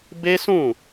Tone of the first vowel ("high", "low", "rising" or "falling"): high